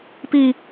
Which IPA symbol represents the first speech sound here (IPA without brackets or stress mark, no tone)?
p